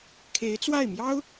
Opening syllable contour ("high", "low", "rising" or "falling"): rising